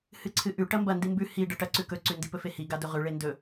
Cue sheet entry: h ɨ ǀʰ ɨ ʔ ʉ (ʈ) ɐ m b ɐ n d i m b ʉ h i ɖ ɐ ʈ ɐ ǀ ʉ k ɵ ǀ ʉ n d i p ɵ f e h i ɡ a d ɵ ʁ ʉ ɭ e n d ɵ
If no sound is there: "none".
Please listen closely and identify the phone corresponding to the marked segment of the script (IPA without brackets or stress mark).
ʈ